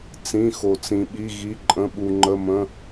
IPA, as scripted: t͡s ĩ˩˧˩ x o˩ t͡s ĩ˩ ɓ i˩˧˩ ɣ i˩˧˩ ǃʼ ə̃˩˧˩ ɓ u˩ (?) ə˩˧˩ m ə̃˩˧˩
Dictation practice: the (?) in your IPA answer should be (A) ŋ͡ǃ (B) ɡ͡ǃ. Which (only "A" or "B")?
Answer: A